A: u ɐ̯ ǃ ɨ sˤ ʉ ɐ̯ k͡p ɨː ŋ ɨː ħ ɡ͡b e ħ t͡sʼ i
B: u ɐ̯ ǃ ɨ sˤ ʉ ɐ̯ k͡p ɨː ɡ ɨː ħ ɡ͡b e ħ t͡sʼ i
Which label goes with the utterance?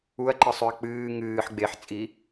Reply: A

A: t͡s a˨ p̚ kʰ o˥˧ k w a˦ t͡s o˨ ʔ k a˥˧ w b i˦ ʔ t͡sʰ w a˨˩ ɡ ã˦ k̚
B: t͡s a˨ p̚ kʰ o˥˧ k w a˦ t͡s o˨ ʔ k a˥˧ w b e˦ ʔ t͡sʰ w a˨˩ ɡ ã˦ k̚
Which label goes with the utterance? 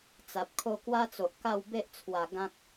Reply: B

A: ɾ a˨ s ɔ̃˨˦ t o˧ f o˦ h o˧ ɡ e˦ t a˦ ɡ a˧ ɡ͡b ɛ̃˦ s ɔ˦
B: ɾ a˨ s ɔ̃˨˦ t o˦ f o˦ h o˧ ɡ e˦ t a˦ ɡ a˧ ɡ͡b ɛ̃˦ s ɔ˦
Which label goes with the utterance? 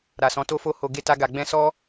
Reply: B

